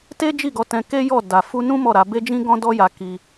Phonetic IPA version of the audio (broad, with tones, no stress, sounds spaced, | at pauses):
t e˦ d͡ʒ i˦˨ ɡ ɔ˨˦ t ɛ̃˧ k e˦ j ɔ˦˨ d a˨ f u˧ n ũ˦ m ɔ˦˨ ɾ a˨˦ b e˦ d͡ʒ ĩ˦ ɡ ɔ̃˦ d ɔ˦ j a˧ k i˧